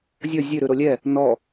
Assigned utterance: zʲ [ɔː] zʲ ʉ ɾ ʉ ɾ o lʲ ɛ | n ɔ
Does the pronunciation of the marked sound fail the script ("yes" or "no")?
yes